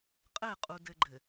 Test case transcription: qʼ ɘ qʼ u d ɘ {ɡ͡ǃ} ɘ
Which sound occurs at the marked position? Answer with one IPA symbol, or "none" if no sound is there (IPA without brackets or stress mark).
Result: ɡ͡ǃ